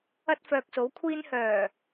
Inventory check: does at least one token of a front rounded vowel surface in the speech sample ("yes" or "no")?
yes